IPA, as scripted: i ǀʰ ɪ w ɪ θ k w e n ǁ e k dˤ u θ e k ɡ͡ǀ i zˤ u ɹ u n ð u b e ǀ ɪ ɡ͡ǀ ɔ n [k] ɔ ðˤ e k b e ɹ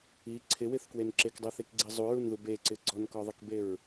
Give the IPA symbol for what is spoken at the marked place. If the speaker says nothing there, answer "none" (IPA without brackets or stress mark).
k